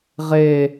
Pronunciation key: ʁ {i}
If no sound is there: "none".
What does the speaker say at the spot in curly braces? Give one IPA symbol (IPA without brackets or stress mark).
e